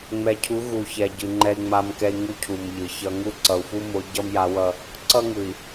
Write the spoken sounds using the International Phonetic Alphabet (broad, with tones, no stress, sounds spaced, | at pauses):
ŋ͡m ɛ˨ cʰ u˨˦ ɣ u˨ ç ɛ˨ ɟ ɯ˨ ŋ͡ǃ ɛ˦ i̯ ŋ͡m a˦ m k ɛ˦ i̯ ŋ u˦ cʰ u˨ m ʎ ɯ˨ ç ʌ˦ ŋ u˦˨ ǀ ʌ˨ u̯ f u˦ m o˨˦ ɟ ʌ˦ m j a˨˦ w ʌ˦ | ǀ ʌ˦ ŋ ɯ˨ i̯